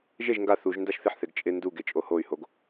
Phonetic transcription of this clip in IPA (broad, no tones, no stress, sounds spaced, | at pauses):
ʒ e ʒ ŋ ɡ a θ u ʒ n d a ʃ θ ɪ ħ θ e ɡ t͡ʃʼ ɪ n d u ɡ e t͡ʃʼ o h o y̯ h o ɡ